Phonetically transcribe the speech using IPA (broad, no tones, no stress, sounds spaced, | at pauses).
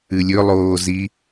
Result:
ɨ lʲ ɵ lˠ oː z i